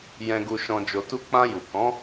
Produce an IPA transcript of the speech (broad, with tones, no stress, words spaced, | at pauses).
jɛ̃˨ɡu˨ʃɔ̃˨ d͡ʒo˨tu˧ k͡pã˧ju˨ kɔ̃˨˦